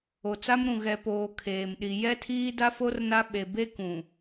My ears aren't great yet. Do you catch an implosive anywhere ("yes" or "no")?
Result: yes